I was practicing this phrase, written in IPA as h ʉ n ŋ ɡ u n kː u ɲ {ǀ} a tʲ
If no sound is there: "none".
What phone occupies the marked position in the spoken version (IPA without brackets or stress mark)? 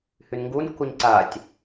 ǀ